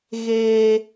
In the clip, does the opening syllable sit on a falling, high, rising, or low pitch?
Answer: high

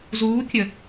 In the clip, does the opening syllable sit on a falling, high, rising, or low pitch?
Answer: rising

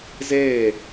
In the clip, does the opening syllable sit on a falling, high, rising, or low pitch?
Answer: falling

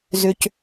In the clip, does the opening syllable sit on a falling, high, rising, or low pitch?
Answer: high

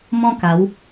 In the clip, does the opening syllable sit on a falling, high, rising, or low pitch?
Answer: high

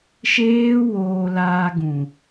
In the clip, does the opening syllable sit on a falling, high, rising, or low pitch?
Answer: high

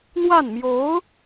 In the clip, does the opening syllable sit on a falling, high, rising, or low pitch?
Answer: falling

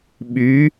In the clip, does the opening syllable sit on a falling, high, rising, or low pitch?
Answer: rising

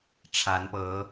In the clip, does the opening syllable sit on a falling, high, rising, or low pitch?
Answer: rising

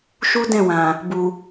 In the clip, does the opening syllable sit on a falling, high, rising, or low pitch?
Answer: high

